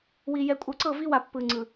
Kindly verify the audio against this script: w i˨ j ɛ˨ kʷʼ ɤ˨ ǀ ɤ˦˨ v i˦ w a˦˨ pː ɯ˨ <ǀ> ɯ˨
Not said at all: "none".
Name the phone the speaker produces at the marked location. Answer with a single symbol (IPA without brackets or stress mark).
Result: ŋ͡ǀ